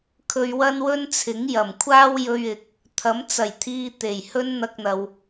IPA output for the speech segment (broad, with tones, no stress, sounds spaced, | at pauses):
kʰ ɵ˧ ɥ w ɐ˥ n w ɵ˥ n t͡sʰ ɪ˨˥ ŋ j ɐ˨˩ m kʷʰ aː˥ w j ɵ˧ ɥ ɪ˨˥ k̚ | t̪ʰ ɐ˨˥ m t͡s ɐ˨˩ j t̪ʰ iː˧ t̪ e˨˩ j h ɵ˥ n n̪ ɐ˧ k̚ n̪ ɐ˨ w